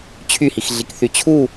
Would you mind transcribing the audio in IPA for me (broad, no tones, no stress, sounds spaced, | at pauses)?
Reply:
t͡ɕʰ y h i x ɮ i k θ y t͡ɕʰ u